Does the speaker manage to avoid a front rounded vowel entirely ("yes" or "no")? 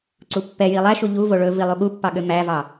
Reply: no